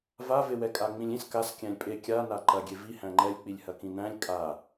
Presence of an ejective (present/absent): present